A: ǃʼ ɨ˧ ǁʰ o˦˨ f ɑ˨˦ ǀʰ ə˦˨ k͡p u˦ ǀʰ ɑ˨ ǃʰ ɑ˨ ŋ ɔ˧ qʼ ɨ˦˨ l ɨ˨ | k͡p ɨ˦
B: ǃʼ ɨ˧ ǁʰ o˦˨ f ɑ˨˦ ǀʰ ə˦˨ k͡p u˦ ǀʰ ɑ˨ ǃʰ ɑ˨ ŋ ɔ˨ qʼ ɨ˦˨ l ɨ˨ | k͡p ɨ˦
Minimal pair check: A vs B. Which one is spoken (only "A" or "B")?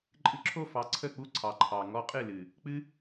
A